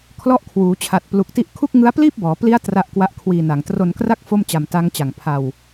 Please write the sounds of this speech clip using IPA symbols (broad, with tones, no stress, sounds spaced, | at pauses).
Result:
kʰ l ɔ˦˥ ʔ kʰ w uː˩˦ t͡ɕʰ a˨˩ t̚ p l u˨˩ k̚ t i˦˥ ʔ kʰ u˥˩ k̚ ŋ ɯ˦˥ a̯ p l iː˥˩ p̚ b ɔː˩˦ p l i˦˥ a̯ t r a˦˥ ʔ k w a˦˥ ʔ kʰ w iː˧ n a˨˩ ŋ t r o˧ n k r a˥˩ k̚ f o˥˩ m t͡ɕ a˧ m t a˦˥ ŋ t͡ɕ a˨˩ ŋ pʰ a˧ w